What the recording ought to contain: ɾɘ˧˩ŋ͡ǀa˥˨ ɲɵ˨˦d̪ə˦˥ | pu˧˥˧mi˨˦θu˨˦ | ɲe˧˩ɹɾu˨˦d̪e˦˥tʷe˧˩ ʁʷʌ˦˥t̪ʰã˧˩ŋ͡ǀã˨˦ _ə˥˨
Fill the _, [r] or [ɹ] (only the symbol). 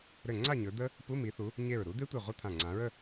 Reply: ɹ